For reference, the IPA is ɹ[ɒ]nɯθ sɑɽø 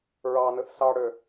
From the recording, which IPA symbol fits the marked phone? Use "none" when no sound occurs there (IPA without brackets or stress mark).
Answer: ɑ